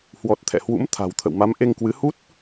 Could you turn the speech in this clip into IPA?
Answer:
h w ɔ˨˩ t̚ t̪ʰ ɛ̰˧˨ h w ṵ˧˥ m t̪ʰ a̤˨˩ w t̪ʰ ə̰˧˨ w m a˨˦ m ʔ e˧ ŋ k w ɨ˨˦ h u˦˥ t̚

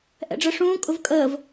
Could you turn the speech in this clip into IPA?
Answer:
ʔ ɛ̰ ɖ͡ʐ ə ʂ ũː kʼ ʊ v kʼ əː v

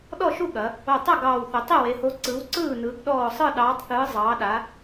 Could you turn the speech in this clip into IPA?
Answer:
ɗ ɔ˥˩ ʃ u˥˩ ɠ ɐ˩˧ | o˧˩ tˤ ɐ˥˩ ɡ ɑː˧˩ w θ ʏ˩˧ tˤ e˥˩ w e˩˧ h o˨˥ ǀ ɯ˨˥ w ǀ ɯː˥˩ n ɯ˩˧ ɡ ɗ ɔː˧˩ sˤ ɯ˥˩ ɗ ɑː˨˥ tˤ θ ɯː˨˥ zˤ ɑː˨˥ ɗ a˨˥

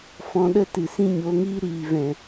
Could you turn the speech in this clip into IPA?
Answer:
f ɔ̃˧ ɗ ə˦ t ɨ˨ s ĩ˦ ɲ o˨˦ ŋ iː˦ ɾ iː˨ v ɛ̃˨

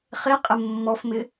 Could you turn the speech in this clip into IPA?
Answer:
χ e qʼ ɪ mː ɔ f m ɪ

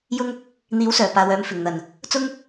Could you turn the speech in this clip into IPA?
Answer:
j ʊ˧ ŋ | n̪ iː˨˥ w s œː˨˩ p aː˨ w œː˨˧ m f ɪ˨˩ ŋ n̪ ɐ˨˩ n | t͡s ʊ˥ ŋ

